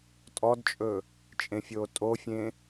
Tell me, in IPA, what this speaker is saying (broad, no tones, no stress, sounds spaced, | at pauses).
tʼ ɔ d t͡ʃʼ ɵ | t͡ʃʼ ẽ fʲ oː tʼ o fʲ ẽ